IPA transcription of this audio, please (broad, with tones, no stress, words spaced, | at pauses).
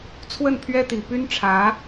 t͡sʰwə˥˩n pʰɥɛ˥t̪i˨˩ py˥nʈ͡ʂʰä˧˥